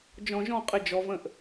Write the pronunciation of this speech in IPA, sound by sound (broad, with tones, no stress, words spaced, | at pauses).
d͡ʒɔ̃˧ʒɔ̃˥˧qʼɘ˧ d͡ʒɔ˩˧və̃˧˩ʔ